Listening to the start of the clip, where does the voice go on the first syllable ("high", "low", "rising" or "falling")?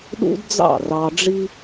high